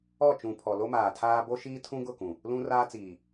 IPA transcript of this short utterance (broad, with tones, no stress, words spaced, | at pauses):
ɔ˦˨t͡ʃũ˨pʰɔ˨ lo˦maː˨tʰaː˦ bo˦ ʃiː˦tʰũ˦ɡʊ˦˨kũ˨ | lũ˦raː˦t͡siː˨